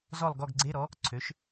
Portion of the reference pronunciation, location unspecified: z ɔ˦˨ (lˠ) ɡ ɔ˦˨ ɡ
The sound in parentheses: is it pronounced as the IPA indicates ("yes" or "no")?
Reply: yes